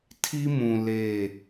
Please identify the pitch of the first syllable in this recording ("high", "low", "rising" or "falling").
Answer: high